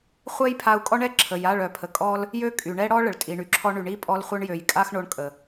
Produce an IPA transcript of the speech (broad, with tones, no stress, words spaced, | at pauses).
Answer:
χʷɛ˦jpʰa˧u̯kʼɔ˦ɳɛ˦ ǁʰə˨ja˦˨ɭ œ˨pʰə˨kʼɔ˧l | jø˦ kʼy˨ɳɛ˦ɽɔ˦ ɭə˨ɭtʼi˨ɳy˨ǁʰɔ˧ ɳy˨ɳi˦ pʼɔ˧lχʷœ˧ɳjø˨j kʼa˦xɳo˧ɳkʼə˨